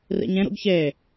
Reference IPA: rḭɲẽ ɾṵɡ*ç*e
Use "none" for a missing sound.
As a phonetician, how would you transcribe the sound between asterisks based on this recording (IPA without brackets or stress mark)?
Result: ç